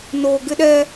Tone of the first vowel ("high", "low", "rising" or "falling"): low